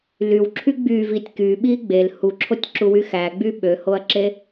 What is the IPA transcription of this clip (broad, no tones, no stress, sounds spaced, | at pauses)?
l y w ǁʰ y ɡ͡b y v i tʲ k y ɓ i ɡ͡b e l h u ǁʰ o tʲ ǁ u w y x æ ɡ͡b y ɓ ø h o ɐ̯ ǁ e